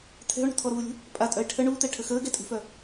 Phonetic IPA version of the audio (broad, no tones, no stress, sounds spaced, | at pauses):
t̪ʰ ɛ̤ o̯ ɳ ṳ t̪ʰ ɔ ɾ uː lʲ ṳ | pʼ a tʼ œ e̯ ʈʰ ə ɳ uː t̪ ɛ ʈʰ ə x əː ɡ ɛ tʼ ṳ f œ